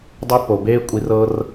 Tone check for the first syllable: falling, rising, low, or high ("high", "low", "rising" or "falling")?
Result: high